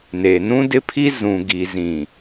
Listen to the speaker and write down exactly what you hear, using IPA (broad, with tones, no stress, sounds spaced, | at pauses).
n e˨ n ũ˦ d ɪ˦ pʰ i˦ z ũ˨ ɡ i˨ z ĩ˨